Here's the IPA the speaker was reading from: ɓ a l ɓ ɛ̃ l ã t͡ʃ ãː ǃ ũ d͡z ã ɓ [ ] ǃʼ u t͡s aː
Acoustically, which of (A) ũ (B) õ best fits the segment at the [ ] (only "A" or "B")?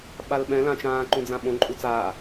B